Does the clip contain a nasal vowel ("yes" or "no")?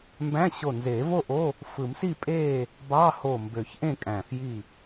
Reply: yes